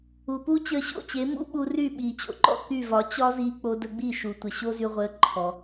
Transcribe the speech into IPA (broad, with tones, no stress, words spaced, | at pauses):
u˩puː˥ t͡ɕəː˧ɕo̰˥˩t͡ɕe˩˥ mṵ˥ɓu˧ry˥˩ ɓiː˩t͡ɕo̰˩ǃɔ̰˥˩ ky˥˩vɒ˩˥ t͡ɕɒ˥ziː˧k͡po˧ də˧ɡ͡bi˥˩ʃu˩tʷə˩ ɕo˥zy˧ʁʷəː˧ ǃʰɔ˩